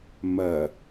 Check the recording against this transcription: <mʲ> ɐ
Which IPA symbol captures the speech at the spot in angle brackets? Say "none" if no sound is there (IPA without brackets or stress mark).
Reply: m